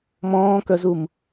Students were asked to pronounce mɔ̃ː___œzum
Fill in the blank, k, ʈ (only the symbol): k